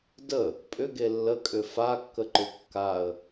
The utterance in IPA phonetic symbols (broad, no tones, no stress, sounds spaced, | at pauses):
d ə | pʼ ʏ ɡ e lː ə kʼ ʏ f a kː ə ǃ ʏ kː a ə̯